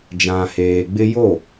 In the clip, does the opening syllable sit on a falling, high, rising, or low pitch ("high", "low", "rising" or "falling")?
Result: low